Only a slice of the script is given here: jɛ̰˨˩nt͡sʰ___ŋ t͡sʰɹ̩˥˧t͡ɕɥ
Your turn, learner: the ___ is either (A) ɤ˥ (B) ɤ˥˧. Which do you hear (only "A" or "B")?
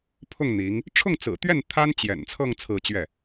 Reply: B